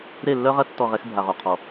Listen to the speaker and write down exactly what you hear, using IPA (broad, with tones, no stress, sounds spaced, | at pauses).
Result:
ɾ e˦˨ lː œ˦ ʁ ɐ˦ tː ɔ˦˨ ʁ ɛ˦ x bʱ a˨ ʁ o˨ qʰ ɔ˨